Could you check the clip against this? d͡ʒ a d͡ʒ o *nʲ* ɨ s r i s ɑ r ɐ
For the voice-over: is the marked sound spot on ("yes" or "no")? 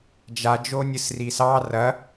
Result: yes